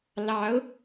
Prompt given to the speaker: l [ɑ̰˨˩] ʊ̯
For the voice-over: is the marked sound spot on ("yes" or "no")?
no